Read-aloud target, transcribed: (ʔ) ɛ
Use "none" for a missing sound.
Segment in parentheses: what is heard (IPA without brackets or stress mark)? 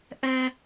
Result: ʔ